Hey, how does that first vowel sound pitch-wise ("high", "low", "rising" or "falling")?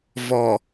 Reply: low